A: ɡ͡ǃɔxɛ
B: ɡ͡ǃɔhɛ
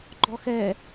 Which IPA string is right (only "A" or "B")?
A